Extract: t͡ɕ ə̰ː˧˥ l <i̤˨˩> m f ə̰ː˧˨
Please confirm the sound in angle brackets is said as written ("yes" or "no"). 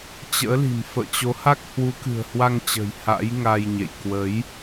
yes